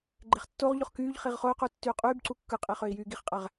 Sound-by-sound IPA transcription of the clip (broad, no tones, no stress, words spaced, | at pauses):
ɡ͡ǃeχtːoʁʎoχ kyːʎ χiʁχoy̯qu tːyːqʼyːbǀu kːɯqʼe χøi̯jyːɡiχqʼæʁ